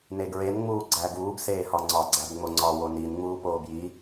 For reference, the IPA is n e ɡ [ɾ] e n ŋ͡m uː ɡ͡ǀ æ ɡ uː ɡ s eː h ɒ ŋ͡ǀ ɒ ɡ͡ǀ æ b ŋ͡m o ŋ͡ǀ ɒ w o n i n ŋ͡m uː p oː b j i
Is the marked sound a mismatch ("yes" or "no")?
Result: yes